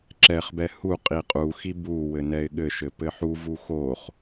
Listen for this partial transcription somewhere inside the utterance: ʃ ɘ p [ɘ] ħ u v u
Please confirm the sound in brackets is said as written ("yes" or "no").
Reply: yes